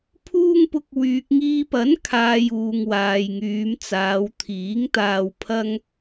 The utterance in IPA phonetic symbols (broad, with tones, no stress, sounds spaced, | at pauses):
pʰ uː˧ ŋ p ʊ˨ k̚ w yː˨ k̚ ŋ iː˧ p ɐ˨˥ n kʰ aː˨ j uː˨ ŋ w aː˨ j ŋ yː˨˧ m t͡s aː˨˧ w t̪ʰ iː˨˥ ŋ t̪ aː˧ w pʰ ɐ˥ ŋ